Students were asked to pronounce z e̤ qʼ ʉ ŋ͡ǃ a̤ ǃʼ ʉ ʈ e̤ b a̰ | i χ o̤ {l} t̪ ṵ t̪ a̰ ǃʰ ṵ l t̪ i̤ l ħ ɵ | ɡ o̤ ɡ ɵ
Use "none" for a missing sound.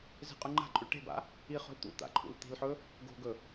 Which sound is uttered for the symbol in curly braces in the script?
l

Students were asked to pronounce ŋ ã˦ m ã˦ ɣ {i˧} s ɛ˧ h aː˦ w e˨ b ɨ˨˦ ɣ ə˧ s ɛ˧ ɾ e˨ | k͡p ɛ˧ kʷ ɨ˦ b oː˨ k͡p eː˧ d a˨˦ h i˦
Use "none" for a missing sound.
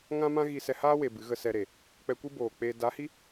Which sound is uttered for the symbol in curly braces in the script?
i˧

